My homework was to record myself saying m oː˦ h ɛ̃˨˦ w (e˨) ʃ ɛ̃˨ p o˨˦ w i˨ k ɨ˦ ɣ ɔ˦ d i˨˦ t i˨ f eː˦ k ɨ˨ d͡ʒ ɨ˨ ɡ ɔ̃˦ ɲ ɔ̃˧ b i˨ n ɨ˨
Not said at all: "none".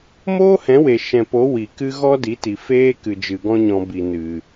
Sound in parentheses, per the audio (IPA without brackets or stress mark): e˨